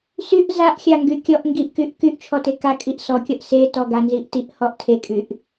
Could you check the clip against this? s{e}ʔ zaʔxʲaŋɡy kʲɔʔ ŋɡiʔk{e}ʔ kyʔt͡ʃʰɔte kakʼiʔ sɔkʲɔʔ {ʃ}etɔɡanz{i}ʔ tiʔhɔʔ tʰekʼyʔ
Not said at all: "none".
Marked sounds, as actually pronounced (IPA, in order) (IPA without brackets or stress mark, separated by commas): y, y, s, i